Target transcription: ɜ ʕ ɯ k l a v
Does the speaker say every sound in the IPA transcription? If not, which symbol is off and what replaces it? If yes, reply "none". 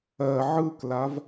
none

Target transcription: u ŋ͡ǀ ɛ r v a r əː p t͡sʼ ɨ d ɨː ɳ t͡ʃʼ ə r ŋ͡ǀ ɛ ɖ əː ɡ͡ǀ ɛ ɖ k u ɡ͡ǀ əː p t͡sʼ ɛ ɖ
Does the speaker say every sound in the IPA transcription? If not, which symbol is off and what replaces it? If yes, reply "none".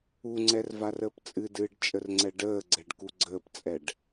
ɳ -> ɖ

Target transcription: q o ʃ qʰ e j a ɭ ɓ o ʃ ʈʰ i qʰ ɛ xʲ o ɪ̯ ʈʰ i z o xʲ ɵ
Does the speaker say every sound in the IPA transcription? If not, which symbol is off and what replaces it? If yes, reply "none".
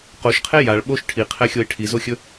none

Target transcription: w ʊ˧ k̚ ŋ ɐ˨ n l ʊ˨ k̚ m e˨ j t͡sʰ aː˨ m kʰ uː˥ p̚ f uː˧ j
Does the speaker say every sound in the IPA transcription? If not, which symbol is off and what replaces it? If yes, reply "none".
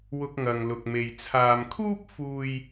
n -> ŋ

